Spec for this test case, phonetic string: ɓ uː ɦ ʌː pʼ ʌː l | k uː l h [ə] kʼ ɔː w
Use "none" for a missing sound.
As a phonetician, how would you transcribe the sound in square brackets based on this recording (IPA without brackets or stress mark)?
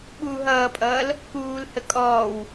ə